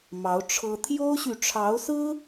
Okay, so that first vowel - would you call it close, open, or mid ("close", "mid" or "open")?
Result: open